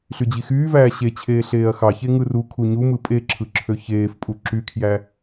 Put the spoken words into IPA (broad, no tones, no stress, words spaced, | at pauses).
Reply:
ɬyd͡ʑixyːvæː ɕet͡ɕʰeː ɬeːɐ̯xɑçe ŋɯrukʰu ɲumɯ pʼeǁʰɯ ǁʰøçeːfpʼu ǁykʰjæ